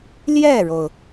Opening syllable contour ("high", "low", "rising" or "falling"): falling